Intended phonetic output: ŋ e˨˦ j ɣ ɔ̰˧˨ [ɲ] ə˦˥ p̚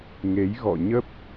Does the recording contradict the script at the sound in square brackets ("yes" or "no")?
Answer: no